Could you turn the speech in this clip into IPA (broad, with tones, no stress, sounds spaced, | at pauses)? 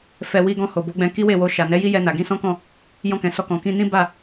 f ɛ˧ w i˧ ɡ ɔ̃˧ h o˨ b o˨˦ ɡ͡b ɛ̃˧ k i˦ w e˦˨ w o˧ ʃ a˨ n ɛ˨˦ j i˦ j ɛ˧ n a˨ ɡ ĩ˧ s ɔ̃˦ k ɔ̃˦˨ | j ɔ̃˧ k ɛ̃˨ s ɔ˧ k ɔ̃˨ k ĩ˧ n ĩ˦ b a˦˨